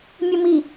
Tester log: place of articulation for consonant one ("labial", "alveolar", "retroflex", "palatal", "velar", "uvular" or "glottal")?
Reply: labial